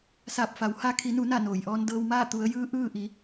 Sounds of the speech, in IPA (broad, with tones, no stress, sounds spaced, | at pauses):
s aː˧˩ p̚ f a˩˧ w h a˧ kʰ i˩˧ n u˩˧ n a˧˩ n oː˩ j ʔ ɔː˧ n d ɤː˧ w m aː˥˨ t̪ u˩˧ ə̯ j ɯː˧˥ ʔ ɯː˥˨ ʔ i˩˧